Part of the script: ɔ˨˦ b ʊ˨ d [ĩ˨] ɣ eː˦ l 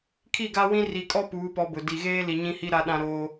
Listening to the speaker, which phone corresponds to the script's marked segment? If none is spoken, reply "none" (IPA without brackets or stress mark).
i˨